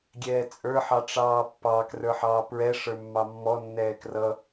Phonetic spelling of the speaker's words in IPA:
ɡʲ ɛː t͡sʼ ə˞ ħ ɑ ʈ͡ʂ ɑː pː ɑ k r ə˞ ħ ɑː p ɹ ɛ ʂ ə˞ mː ɑ mː ɔ nː ɛː k r ʌ

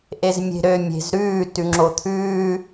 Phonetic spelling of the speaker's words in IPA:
ʔ e z mʲ e̤ ɾ ø mʲ e̤ z ɾ ʉː t ʉ ŋ͡ǁ o t̪ʰ ʉː

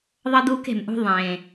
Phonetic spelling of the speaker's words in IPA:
ðˤ ʌ˦ d̪ uː˦ k e̤˨ m ʔ ṳ˦ ðˤ ẽː˨

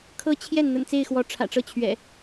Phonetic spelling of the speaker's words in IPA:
kʰ ɤ˦ t͡ɕʰ j ɛ˥˨ n n̪ ə̰˨˩ n t͡s e˥˨ ɪ̯ x w ɔ˨˦ ʈ͡ʂʰ ä̰˨˩ ʈ͡ʂ ɤ˥˨ t͡ɕʰ ɥ ɛ̰˨˩

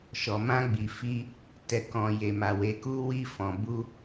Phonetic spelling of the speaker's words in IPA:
ʃ ɔ˨ m ã˧ ɡ͡b i˨ f i˧ | t ɛ˨ k ɔ̃˨ j e˨ m a˨ w e˨ k u˧ w i˧ f ɔ̃˨ b u˧

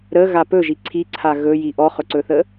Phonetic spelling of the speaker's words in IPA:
ɾ ə ɣ a p ɵ ʒ i ǀʰ i ǀʰ a ɣ ɵ j i ʔ ɔ χ ɵ ǀ ɵ θ ə

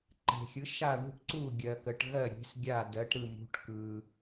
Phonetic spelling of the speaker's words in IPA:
ǃ e̤˩ xʲ ɯ˩˧ ʃ a˧˩ ɳ ṳ˧˩ ʈ ǀ u˧˩ ɡʲ ɜ˩ k ə˩ ʈ ɣ ɜ˧˩ ɾʲ e̤˩˧ s ɡʲ a˧˩ d ɜ˩˧ ʈ ɾ ɯ˧˩ m ṳ˩˧ ʈ k ɯ˩

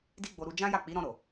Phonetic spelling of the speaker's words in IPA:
d i˦ ɡ͡b o˧ ɾ u˧ d͡ʒ ã˦ j a˦˨ k͡p i˨˦ ɾ ɔ̃˧ ɾ o˨

